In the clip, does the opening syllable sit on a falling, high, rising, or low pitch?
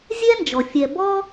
high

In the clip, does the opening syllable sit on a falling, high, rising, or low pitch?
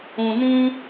low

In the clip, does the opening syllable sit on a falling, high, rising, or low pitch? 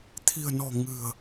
low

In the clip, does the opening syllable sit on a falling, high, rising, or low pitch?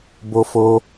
high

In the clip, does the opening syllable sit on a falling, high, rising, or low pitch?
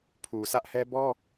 low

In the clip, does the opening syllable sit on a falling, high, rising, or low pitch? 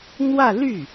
falling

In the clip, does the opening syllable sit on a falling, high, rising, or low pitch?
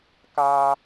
high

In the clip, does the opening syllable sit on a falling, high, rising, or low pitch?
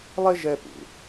high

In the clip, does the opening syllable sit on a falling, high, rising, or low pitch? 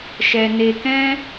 low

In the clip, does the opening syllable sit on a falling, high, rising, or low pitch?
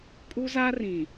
high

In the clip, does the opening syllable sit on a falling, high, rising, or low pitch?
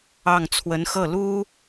falling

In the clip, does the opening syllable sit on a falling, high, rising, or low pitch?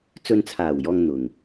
low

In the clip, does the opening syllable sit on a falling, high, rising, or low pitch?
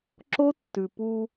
high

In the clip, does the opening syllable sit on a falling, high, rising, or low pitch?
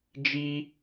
high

